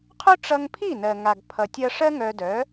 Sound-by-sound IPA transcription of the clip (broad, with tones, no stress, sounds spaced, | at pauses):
qʰ ɵ˥ ʈ͡ʂ ʌ˧ ŋ pʰ i˥˩ n ɜ˩ ŋ a˩ ɡ pʰ ʌ˩ tʲ ʌ˧ ʂ ɜ˥ ŋ œ˧ d œ˩˥